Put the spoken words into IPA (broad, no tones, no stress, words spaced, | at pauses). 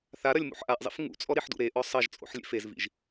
θaɾɐlʲmṵħ ʔaʔzˤḭf ŋṵt͡sʼɔɾiħdṵ ɾeʔɔ sˤɐʒt͡sʼo̰ħlʲḛf ezvḭʒ